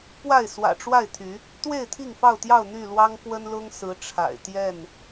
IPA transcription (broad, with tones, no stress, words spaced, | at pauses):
pwa˥˨ɪ̯swä̰˨˩ʈ͡ʂwa˥˨ɪ̯t̪ʰy˨˦ | t̪we˥˨ɪ̯t̪ʰi˥˨ŋ fɑ˥˨ʊ̯t̪jɑ˥˨ʊ̯ n̪y˥˨lwɑ˦ŋkwə˦nlʊ˦ŋ sɹ̩˨˦ ʈ͡ʂʰa̰˨˩ɪ̯t̪jɛ˥˨n